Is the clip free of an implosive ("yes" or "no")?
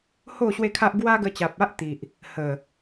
yes